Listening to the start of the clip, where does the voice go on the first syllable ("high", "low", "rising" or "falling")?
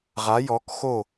rising